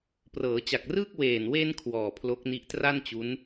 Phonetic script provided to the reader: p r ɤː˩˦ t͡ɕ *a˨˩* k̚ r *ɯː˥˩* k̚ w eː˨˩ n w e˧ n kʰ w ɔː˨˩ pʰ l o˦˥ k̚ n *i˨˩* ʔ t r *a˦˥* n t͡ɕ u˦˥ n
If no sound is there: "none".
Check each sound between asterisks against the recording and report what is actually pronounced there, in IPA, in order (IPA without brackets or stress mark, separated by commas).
a˨˩, ɯː˥˩, i˦˥, a˥˩